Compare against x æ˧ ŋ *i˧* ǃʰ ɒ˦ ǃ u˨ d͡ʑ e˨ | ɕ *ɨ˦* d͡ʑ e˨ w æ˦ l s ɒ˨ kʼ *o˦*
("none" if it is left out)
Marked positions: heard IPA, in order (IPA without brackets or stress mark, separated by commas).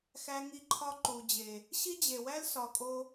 i˧, i˦, o˦